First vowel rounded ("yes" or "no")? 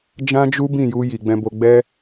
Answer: no